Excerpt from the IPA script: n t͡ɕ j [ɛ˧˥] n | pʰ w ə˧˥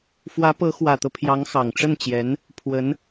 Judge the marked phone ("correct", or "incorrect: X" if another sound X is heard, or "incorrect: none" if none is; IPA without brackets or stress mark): correct